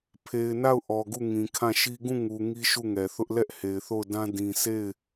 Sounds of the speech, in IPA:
pʰe˨ɪ̯na˦˨ʊ̯ ʔɔ˨ɡu˦˨ ŋĩ˨kʰã˦˨ʃi˦ ɡũ˦˨ŋu˨ ŋi˦ʃu˦˨ŋɛ˨ θʊ˦ʔ lɛ˦ʔhe˨ɪ̯θo˦˨ʊ̯dã˦ dĩ˦ sʰe˦˨ɪ̯

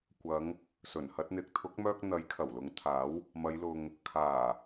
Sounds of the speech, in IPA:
kʷɐ˨˧ŋ | sɵ˨˩nhɐ˧t̚n̪ɪ˨˥k̚t̪ʰʊ˨˥k̚ mœː˧k̚ n̪ɐ˨˥j kʰɐ˨˩wlʊ˨˥ŋt̪ʰaː˨˥w | mɐ˨˧jlʊ˨ŋ | kʰaː˨˩

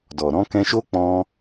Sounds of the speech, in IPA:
dɔ˨ ɾɔ̃˨˦kɛ̃˧ʃo˦ k͡pɔ̃˦

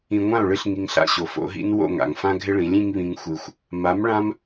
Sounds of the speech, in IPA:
ĩ˨ŋʷã˦˨o̯ɭɨ˧ɬ ŋi˧ŋɬa̰˦˨ɕo˨fo̰˨˦ ɦḭ˦nwo̰˦˨ŋa̰˨ŋ fã˦ɡʱɪ˦ɭĩ˨˦lʲĩ˦ŋ βĩ˦ŋxʷɨ˧xʷ | ma˨˦mɭã˦m

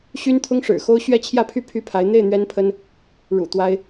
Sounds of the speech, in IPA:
ɕy˥nt̪ʰʊ˥ŋʂɻ̩˨˩xo˥ʊ̯ ɕɥɛ˥˧t͡ɕʰjä˥˧pʰy˥˩ pʰy˥pʰa˧˥ɪ̯ n̪e˥˩ɪ̯ n̪ɥɛ˥npʰə˥n | ɻṵ˨˩ t̪wa˥ɪ̯

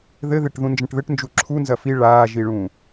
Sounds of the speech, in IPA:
ðɘðeʈ ðũnd͡ʒɐ̃ʈðɘʈnd͡ʒu ǁʰu nzɐfi ɭaːʒiɭũ

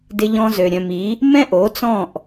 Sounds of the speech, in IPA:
dɪ˧ʎɔ̃˧zø˨ ɾʲœ̃˨mi˨˦ | mɛ̃˦ʔo˨˦t͡sɔ̃˦˨ʔ

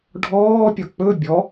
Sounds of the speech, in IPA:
ɖʱɔːpʲɒ k͡pɵ bʲɔ

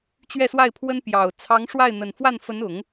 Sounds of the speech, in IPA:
t͡ɕɥɛ˥˧swa˥˩ɪ̯pʰwə˥n pjɑ˨˩ʊ̯ t͡sʰɑ˧˥ŋʂwa˥˩ɪ̯n̪ə˨˩n fwa˥˩nfə˧˥nʊ˨˩˦ŋ

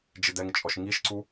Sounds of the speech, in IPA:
d͡ʒɪdɛŋt͡ʃʼɔʃ ŋiʃǀu

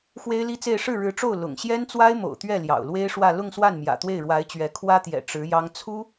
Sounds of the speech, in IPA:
xwe˥ɪ̯li˥t͡se˥˧ɪ̯ ʂɻ̩˥˩ɻɻ̩˧˥ʈ͡ʂo˥˩ʊ̯ lʊ̰˨˩ŋ ɕjɛ˥nt͡swa˥ɪ̯mo̰˨˩ʊ̯t̪ɥɛ˥˩ ljɑ̰˨˩ʊ̯lwe˥ɪ̯ʂwä˥˧ lʊ˥˧ŋswa˥˩n mjä̰˨˩t̪we˥˩ɪ̯ɻwa˧˥ɪ̯t͡ɕɥɛ˧˥ kʰwä˥t̪jɛ̰˨˩ ʈ͡ʂɻ̩˧˥jɑ˥ŋ t͡sʰu˥

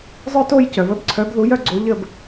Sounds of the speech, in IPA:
zˤœ˦˨to˦˨j cœ˩və˨˦b ǀʰœ˨˦bðu˨˦jœ˨˦ɡ͡ǀo˨˦ ʎə˦˨b

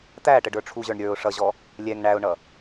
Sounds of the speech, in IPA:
t̪æ ʈəɖə˞ʈ͡ʂʰuʑə˞ɳ ɾʲə˞ʊ̯ ʂʌʑɔ | lʲɛŋ ɳæʊ̯ɳʌ

